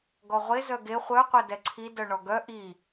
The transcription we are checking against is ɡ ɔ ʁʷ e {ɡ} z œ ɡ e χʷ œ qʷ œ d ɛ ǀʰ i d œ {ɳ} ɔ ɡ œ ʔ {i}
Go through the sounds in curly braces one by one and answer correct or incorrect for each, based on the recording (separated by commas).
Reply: incorrect, correct, correct